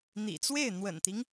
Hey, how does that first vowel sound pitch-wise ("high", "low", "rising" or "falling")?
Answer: low